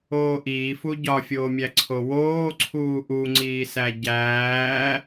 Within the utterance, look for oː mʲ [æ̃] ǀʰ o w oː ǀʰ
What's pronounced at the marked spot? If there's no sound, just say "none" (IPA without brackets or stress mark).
æ